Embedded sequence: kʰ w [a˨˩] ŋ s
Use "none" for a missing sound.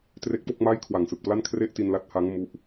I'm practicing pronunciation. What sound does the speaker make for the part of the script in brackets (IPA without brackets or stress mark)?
a˨˩